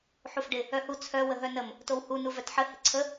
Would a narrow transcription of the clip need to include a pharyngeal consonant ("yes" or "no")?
yes